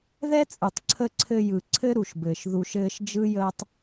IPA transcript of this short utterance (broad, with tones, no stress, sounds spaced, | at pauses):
ð ɛ˦ t͡sʼ ɯ˨ tˤ ǀʰ ə˧ ǀʰ ɘ˧ j ɯ˨ ǀʰ ɘ˦ ɾ u˨ ʃ b ɘː˨ ʃ ð u˧ ʃ ɘː˦ ʃ d͡ʒ ɯ˦ j əː˦ tˤ